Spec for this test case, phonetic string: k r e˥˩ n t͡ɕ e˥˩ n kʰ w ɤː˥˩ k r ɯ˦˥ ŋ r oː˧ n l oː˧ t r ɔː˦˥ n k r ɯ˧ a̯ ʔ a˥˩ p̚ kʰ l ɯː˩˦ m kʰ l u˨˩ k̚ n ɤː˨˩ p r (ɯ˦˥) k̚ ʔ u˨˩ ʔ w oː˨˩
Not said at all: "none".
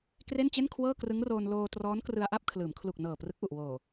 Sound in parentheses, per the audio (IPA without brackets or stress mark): ɯ˦˥